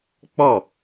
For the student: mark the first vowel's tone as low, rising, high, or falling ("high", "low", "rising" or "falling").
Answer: falling